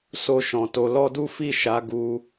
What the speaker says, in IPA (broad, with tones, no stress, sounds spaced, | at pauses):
s o˦ ʃ ɔ̃˧ t o˧ l ɔ˦ d u˦ f i˦˨ ʃ a˨˦ ɡ u˧